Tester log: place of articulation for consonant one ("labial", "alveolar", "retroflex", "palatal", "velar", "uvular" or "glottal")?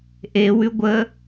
glottal